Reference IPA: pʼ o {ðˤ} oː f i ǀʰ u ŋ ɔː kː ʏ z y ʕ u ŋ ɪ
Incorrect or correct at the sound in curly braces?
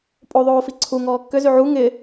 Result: correct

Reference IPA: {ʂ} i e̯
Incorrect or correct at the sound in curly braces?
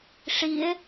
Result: correct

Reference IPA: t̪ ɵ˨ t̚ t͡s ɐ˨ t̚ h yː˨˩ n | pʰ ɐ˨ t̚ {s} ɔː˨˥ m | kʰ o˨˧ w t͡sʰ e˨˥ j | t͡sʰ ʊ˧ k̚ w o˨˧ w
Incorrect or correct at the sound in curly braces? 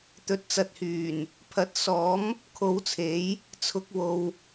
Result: correct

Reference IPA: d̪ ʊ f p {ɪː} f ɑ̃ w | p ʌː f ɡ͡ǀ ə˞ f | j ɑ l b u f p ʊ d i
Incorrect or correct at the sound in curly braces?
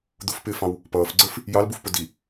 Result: correct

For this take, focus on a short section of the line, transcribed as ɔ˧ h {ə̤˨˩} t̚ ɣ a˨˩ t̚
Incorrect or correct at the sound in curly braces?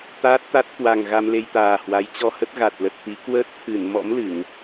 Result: incorrect: ə˦˥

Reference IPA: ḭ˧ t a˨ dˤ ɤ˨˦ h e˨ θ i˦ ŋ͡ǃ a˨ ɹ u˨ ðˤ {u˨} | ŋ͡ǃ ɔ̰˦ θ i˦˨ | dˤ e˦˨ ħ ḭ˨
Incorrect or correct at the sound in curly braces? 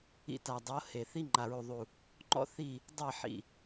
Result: correct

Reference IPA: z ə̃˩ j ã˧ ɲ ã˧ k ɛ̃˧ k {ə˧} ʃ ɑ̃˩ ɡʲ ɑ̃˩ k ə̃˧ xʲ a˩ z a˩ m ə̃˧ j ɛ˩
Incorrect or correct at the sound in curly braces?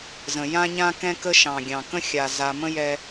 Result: correct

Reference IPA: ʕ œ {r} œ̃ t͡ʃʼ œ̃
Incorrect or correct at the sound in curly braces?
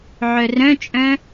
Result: correct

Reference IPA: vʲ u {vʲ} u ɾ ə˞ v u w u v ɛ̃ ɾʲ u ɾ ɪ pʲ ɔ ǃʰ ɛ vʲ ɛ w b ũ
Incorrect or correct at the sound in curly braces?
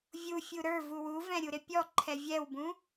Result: incorrect: fʲ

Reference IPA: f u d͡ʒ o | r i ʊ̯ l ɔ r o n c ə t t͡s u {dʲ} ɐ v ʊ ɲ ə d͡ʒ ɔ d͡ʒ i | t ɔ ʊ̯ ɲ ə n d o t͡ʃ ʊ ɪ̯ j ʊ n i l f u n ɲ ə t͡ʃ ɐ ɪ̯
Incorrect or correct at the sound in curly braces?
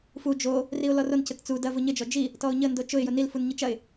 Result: incorrect: d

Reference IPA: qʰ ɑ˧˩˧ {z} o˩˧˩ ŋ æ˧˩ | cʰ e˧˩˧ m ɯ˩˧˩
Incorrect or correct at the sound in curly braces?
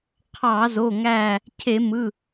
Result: correct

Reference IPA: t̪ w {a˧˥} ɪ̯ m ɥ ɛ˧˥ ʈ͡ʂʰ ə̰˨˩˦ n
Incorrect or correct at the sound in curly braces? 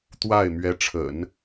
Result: incorrect: a˥˩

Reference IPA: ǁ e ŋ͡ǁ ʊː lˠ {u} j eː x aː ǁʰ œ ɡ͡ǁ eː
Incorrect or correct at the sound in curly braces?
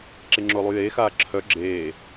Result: correct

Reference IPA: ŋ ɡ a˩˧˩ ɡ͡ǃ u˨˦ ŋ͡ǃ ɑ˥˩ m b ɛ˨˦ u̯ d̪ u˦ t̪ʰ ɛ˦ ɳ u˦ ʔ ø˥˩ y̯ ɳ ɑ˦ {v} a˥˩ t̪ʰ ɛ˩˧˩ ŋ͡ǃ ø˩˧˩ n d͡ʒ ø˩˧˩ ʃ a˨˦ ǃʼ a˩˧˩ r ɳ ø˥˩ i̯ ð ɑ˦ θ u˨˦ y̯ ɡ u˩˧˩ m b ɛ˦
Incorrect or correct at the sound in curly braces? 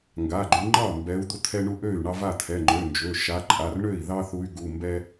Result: correct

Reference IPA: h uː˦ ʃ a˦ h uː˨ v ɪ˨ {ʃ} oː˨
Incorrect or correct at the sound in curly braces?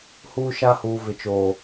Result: incorrect: t͡ʃ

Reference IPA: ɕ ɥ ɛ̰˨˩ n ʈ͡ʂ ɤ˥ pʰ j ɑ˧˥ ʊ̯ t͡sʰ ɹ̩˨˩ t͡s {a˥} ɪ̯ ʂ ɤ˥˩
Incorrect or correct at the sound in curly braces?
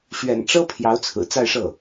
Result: incorrect: a˥˧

